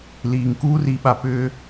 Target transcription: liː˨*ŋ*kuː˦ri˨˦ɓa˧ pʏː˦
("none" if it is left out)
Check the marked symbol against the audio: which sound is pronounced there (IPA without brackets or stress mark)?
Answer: ŋ